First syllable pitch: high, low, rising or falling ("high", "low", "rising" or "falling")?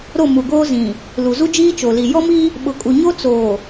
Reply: falling